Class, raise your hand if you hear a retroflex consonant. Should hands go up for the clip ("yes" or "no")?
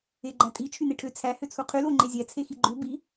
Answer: yes